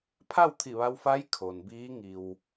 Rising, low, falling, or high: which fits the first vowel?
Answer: falling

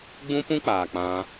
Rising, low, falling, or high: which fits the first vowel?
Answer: high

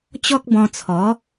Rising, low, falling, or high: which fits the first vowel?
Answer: high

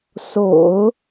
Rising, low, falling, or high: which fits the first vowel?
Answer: low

